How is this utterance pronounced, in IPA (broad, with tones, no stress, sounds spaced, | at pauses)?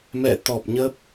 m ɛ̰˧˨ t̪ ɔ˨˩ p̚ ɲ ə˦˥ p̚